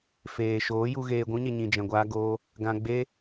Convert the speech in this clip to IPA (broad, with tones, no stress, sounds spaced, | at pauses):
f eː˨ ʃ oː˨˦ j u˧ ɣ eː˧ ɡʷ ũ˦ ɲ e˧ ɲ ĩ˧ d͡ʒ ɛ̃˧ ɡʷ aː˦ ɡ oː˦ | ɡ ã˧ ɡ͡b e˦